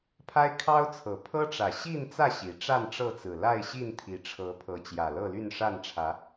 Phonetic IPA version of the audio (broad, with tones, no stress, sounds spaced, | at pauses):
pʰ a˦ ɪ̯ kʰ ɑ˦ ʊ̯ t͡sʰ ɤ˨˩ pʰ ɤ˦ ʈ͡ʂ ä˨˩ ɕ i˥˨ n t͡s ä˥˨ ɕ i˨˦ ʈ͡ʂ a˥˨ n ʈ͡ʂ ɤ˥˨ t͡s ɹ̩˨˩ l a˥˨ ɪ̯ ɕ i˥˨ n t̪ʰ i˨˦ ʈ͡ʂʰ ɤ˨˦ pʰ ɤ˨˦ t͡ɕ j ä˨˩ l ɤ˥˨ l y˥˨ n ʂ a˥˨ n ʈ͡ʂʰ ä˨˦